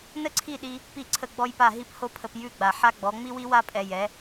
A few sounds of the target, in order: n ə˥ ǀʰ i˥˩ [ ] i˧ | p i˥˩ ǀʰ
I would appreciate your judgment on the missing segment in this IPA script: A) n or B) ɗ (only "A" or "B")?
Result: B